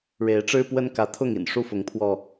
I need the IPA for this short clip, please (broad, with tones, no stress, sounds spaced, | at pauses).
ɻ e˨˦ ɪ̯ ʈ͡ʂ ɻ̩˦ p w ə˦ n k ä˨˦ t̪ʰ ʊ˥˨ ŋ ḭ˨˩ n ʂ u˦ f ʊ˨˦ ŋ pʰ w ɔ˧